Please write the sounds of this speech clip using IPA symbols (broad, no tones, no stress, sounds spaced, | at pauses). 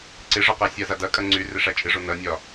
ǀ ɪ ʐ ɒ q a sʲ a z a d ɐ kʼ ɐ ŋ͡ǀ y r ɪ ʂ a t͡ʃʼ ɪ ʐ o n ɐ nʲ ɒ